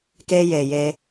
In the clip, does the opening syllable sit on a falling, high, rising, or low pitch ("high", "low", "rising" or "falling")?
high